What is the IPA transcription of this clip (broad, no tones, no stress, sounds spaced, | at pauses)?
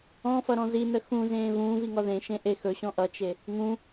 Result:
ɔ̃ f ʌ ɾ ɔ̃ z i n ə x ũ z ẽː v ũː v i ŋ ɔ ð ẽ ʃ ẽ ʔ e x ɵ ɕ ɔ̃ ʔ ʌ t͡ʃ e | ŋ ũ